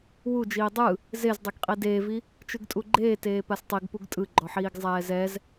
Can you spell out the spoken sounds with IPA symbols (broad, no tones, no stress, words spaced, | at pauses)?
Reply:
wud͡ʒiː dˤɯ | zezdˤɛɡqʼi deːvi | t͡ʃɯɡtʼuɡ͡ǃeː teːpastˤiɡpuɡ tʼɯɡ͡ǃɔħiːɡ zˤɛːzɛz